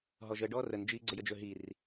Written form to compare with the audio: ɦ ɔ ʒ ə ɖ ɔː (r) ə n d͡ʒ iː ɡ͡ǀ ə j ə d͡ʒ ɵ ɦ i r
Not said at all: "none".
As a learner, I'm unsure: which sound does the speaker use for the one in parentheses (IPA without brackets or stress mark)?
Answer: r